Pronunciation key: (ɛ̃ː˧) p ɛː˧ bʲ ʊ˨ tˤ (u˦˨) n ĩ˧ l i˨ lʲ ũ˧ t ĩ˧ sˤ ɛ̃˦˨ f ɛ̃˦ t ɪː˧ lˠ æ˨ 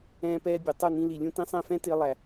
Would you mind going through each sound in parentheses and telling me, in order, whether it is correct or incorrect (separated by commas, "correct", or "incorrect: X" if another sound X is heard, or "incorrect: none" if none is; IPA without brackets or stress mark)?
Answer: correct, correct